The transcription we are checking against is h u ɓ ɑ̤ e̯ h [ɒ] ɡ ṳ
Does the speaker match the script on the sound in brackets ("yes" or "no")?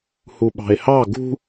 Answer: no